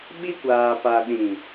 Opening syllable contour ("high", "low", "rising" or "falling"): high